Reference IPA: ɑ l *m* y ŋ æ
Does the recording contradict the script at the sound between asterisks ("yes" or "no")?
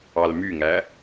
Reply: no